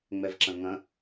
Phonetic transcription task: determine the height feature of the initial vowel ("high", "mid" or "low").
mid